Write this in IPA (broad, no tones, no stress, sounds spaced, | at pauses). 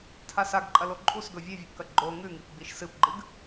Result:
tʰ a s a ɡ ǃʼ ɐ l o ǃʼ u s ɡ ɵ vʲ ʉ vʲ ʉ p k ɐ ɡ͡ǃ o ŋ ʉ ŋ i p ɡ͡b i ʃ s ɨ p ɡ͡ǃ ɨ ɡ